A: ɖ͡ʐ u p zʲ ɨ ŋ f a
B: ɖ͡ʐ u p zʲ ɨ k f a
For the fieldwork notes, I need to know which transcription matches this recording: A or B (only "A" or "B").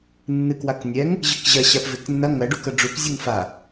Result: A